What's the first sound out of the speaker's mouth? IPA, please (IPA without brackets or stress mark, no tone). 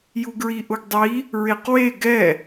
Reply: j